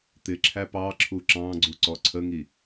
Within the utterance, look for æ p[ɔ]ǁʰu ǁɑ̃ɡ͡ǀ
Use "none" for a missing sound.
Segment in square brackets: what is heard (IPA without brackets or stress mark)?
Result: ɑ